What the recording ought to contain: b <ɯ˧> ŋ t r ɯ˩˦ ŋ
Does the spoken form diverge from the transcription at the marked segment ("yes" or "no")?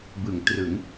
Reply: yes